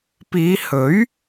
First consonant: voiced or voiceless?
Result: voiceless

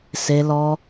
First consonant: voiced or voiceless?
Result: voiceless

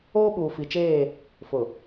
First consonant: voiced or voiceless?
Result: voiced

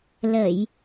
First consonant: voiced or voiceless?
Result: voiced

